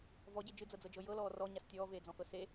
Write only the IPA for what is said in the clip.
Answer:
v ɔ ɟ e d͡ʒ ɨ d͡z ɤ d͡z ɤ d͡ʒ ɤ j ɤ l ɔː r ɔ ɲ a s tʲ ɔː v eː d͡z ɔ̃ x ɤ s e

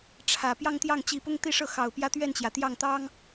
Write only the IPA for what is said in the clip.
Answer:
ʈ͡ʂʰ ä˨˩ p j ɑ˥˧ ŋ t̪ j ɑ˥˩ ŋ t͡ɕ i˧˥ p ʊ˥ ŋ t̪ i˥˧ ʂ ɤ˥˩ x ɑ˨˩ ʊ̯ p j ä˥ t̪ ɥ ɛ˥˩ n t͡ɕ j ä˩ t̪ j ɑ˥˩ ŋ t̪ ɑ˥ ŋ

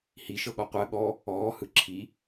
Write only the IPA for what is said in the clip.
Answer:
h i ʃ ɤ ɠ ɔ qʷ ɜ ɠ ɔ | ɔː h ɯ ǁʰ i

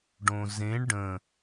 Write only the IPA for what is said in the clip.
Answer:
ɖ õ z ẽ ɳ ɖ ə̃

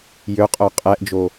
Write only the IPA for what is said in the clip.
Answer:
j ø qʼ œ qʼ ɛ ʔ d͡ʒ o

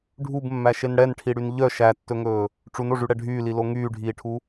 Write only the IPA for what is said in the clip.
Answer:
ɖʱ u b mː æ ʃ e n ɽ ɛ n ʈʰ i ɽ y n ʎ œ ʃ æ tː ɵ ŋ ɵː | ʈ͡ʂ u n o ʐ y ɽ ɛ ɖʱ yː l i l o ŋ yː ɖʱ iː ʈʰ u

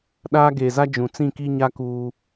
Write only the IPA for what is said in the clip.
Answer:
ɗ aː˦ ɡ eː˨ z a˦ d͡ʒ ũ˨ t͡s ĩ˦˨ k i˦ ɲ a˦ k uː˦

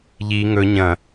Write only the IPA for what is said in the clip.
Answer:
ʎ i ŋ ɵ ɲ ɐ̃

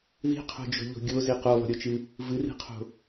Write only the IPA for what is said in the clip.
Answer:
ð i̤ qʰ o̤ d͡ʒ o̤ ʎ o̤ ɡʲ o z i q o lˠ o̤ ɾʲ o t͡ʃ ɨ | v ɨ r i̤ qʰ o̤

